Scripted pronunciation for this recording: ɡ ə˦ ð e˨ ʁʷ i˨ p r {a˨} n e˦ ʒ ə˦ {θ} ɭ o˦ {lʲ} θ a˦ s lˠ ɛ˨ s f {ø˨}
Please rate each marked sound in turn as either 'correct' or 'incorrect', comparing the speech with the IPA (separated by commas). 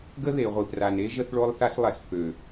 correct, correct, incorrect, correct